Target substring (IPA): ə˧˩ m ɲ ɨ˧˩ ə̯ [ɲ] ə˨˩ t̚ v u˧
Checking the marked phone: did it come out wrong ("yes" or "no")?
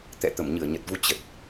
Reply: no